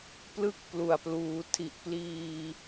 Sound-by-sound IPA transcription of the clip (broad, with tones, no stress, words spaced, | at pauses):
plɯ˥˩k̚plu˨˩a̯pluː˩˦ tʰi˨˩ʔpliː˧